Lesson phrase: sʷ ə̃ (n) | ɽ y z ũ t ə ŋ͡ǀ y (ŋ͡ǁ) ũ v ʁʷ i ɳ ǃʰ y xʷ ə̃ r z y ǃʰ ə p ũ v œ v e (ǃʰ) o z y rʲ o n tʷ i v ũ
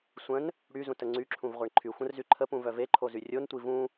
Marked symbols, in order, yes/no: yes, no, yes

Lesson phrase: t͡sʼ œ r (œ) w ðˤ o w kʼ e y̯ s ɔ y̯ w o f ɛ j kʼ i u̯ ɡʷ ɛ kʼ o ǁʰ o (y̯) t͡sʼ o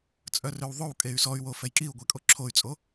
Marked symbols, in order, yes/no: no, yes

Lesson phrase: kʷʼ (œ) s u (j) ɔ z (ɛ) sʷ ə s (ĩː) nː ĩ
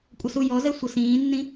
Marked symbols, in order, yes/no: no, yes, yes, yes

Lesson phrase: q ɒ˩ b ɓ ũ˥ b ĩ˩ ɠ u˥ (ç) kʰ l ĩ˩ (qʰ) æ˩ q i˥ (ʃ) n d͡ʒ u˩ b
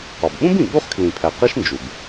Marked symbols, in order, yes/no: no, no, yes

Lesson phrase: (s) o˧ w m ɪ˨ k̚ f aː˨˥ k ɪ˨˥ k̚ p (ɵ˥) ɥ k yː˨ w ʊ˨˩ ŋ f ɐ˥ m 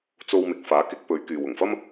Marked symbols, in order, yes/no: no, no

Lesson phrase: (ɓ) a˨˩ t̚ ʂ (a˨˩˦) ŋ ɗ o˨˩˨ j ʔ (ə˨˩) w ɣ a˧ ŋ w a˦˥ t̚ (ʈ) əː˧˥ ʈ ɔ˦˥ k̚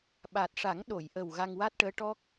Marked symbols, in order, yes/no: yes, yes, yes, yes

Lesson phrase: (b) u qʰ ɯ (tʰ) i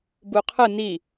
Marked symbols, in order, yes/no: yes, no

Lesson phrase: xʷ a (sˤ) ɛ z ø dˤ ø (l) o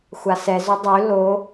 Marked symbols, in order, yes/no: no, yes

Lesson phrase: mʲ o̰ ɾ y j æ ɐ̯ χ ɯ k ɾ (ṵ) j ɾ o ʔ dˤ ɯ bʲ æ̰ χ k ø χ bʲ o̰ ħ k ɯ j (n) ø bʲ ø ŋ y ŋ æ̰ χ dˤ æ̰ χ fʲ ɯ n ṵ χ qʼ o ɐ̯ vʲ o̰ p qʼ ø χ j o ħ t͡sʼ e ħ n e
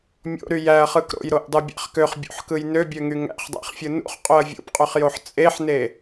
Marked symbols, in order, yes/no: no, yes

